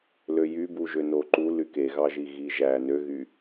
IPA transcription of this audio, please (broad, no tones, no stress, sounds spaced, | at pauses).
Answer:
l ø j y b u ʒ ø n o ǃ u l y k e ɣ ɑ ʒ i ɣ i ʒ æ n ø ɣ y